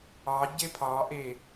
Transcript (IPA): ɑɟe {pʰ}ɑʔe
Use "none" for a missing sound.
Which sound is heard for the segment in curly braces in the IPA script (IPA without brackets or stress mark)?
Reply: pʰ